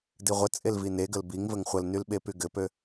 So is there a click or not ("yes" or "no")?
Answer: no